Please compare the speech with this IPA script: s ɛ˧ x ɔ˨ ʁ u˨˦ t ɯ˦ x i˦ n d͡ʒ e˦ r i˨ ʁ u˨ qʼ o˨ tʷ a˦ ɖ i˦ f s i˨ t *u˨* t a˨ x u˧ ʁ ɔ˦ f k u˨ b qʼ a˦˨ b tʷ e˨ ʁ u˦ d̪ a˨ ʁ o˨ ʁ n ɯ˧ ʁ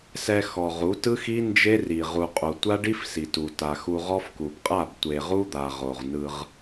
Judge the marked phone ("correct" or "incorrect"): correct